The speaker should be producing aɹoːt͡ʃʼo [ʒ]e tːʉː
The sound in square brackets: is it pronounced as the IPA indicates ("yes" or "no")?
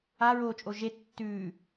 yes